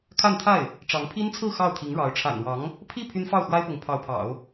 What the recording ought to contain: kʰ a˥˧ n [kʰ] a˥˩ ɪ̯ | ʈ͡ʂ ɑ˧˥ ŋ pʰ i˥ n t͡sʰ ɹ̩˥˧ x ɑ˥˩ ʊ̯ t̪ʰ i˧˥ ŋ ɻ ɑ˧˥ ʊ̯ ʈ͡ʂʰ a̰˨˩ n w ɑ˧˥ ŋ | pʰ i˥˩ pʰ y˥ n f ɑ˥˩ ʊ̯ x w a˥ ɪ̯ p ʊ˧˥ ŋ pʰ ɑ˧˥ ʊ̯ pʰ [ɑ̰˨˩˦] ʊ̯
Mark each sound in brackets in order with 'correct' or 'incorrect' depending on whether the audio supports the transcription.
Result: incorrect, correct

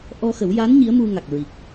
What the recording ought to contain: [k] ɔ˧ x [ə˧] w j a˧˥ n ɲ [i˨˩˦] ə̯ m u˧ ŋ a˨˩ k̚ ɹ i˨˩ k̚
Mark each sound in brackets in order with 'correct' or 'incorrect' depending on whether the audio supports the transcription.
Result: incorrect, incorrect, incorrect

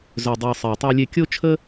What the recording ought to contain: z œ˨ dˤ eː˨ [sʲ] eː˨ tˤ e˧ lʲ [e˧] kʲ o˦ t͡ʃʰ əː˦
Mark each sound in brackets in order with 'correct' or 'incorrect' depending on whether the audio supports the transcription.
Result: incorrect, correct

